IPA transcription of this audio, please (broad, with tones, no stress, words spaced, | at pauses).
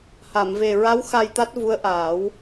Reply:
ha˨˩˨mve˨˩ɹa˧˥w xa˧jt̪a˦˥t̚ vu˧˥ə̯ʔaː˨˩˦w